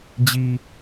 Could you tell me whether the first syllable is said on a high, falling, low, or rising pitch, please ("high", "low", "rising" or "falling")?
low